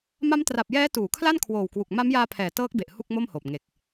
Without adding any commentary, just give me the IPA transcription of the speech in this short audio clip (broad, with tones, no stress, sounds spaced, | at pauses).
m a˦˥ m t r a˨˩ p̚ j ɛː˦˥ t uː˩˦ kʰ l a˥˩ n kʰ w oː˨˩ w k w u˨˩ k̚ m a˦˥ m j aː˧ pʰ ɛː˨˩ t ɤː˦˥ k̚ b e˨˩ ʔ h u˥˩ k̚ m o˥˩ m h oː˨˩ p̚ ŋ e˨˩ k̚